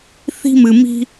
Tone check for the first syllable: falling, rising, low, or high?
high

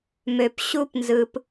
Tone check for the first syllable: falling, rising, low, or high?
low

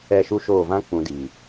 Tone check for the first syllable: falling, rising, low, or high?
falling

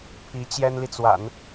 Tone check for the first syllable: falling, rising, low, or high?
rising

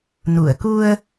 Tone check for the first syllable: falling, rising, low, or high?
low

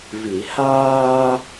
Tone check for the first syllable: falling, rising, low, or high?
low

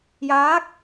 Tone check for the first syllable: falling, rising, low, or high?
rising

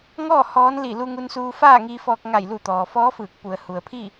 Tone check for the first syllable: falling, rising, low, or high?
falling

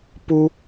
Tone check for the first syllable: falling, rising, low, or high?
high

